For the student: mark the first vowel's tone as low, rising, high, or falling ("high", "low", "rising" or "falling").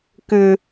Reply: low